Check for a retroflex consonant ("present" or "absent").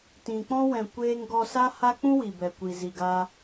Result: absent